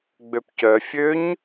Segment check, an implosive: absent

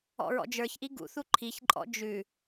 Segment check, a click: present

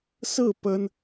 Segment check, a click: absent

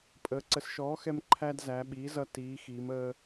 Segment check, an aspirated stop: present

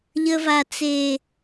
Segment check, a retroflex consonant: absent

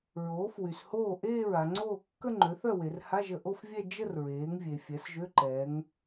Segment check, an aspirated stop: absent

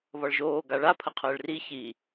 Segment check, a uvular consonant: present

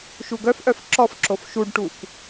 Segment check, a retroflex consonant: present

